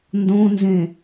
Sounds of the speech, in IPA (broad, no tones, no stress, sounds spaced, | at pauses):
n d õ n z ẽ